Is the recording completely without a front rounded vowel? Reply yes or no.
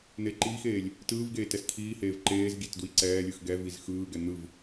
yes